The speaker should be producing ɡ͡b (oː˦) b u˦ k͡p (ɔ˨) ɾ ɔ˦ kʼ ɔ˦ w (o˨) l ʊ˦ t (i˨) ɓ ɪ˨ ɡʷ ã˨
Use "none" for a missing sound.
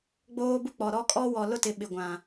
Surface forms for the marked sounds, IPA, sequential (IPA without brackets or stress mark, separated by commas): oː˦, ɔ˨, ɔ˨, ɪ˨